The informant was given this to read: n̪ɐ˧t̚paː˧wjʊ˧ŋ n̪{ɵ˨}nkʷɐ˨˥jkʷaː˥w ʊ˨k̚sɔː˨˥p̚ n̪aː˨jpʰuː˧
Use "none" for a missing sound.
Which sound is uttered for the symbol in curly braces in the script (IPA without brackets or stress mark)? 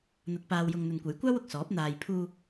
ɵ˨